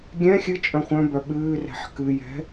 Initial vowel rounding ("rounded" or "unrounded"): unrounded